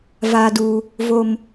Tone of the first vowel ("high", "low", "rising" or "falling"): low